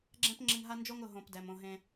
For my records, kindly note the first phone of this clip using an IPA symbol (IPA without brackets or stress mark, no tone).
ɡ͡ǁ